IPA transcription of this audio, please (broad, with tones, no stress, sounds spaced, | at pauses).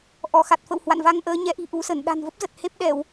ʔ ɔ˧˩ x a˨˩ t̚ f ə̰˧˨ w h w a̰˧˨ n v a˧ ŋ ʔ əː˨˦ ɲ ɛ˨˦ ʔ i̤˨˩ ʔ u˨˦ s ə˧˩ n ɗ a̤˨˩ n v ə˦˥ p̚ z ə˨˩ t̚ h e˦˥ p̚ ɗ ɛ˧˩˨ w